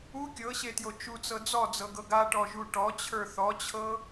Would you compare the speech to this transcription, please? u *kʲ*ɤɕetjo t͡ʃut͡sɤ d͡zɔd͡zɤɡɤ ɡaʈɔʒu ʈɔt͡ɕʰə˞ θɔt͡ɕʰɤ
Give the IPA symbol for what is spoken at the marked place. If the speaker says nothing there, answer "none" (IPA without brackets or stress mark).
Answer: kʲ